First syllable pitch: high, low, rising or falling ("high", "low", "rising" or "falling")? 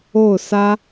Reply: falling